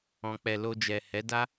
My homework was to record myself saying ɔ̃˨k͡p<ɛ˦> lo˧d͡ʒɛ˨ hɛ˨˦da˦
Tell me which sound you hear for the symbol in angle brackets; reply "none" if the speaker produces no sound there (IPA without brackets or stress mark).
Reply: ɛ˨